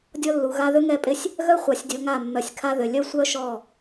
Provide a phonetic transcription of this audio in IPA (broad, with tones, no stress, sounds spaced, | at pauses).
dʲ ɔ˦ lː u˨ ɣ a˦ ð ʏ˦ ŋ ɛ˦ pʼ ɪ˦ sʲ | ɣ œ˦ χʷ a˨ sʲ dʲ o˨ ŋ a˦˨ mː œ˨ sʲ kʰ a˦ ð ʏ˨ lʲ œ˦ sʷ œ˦ ʃ ɔ˦˨